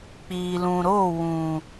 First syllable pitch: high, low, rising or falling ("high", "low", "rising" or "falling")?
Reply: low